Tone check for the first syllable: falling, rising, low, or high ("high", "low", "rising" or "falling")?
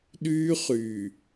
high